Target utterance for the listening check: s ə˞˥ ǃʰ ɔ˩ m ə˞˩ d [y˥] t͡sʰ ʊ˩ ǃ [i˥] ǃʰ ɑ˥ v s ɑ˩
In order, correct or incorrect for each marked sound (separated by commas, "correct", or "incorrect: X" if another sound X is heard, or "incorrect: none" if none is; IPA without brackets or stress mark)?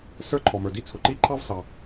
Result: incorrect: i˥, correct